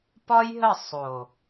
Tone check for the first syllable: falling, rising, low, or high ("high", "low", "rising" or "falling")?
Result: high